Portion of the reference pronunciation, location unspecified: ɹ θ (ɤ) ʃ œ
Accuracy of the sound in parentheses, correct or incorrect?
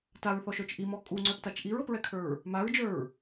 incorrect